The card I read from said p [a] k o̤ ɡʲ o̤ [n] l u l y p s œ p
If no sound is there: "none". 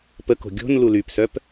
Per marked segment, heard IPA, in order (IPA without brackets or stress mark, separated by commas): ə, n